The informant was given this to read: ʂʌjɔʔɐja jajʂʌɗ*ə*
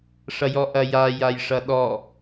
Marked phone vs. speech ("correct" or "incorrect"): incorrect